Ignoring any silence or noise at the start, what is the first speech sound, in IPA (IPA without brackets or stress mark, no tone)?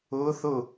ʊː